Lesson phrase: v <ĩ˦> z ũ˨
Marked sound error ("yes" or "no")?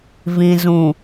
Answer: yes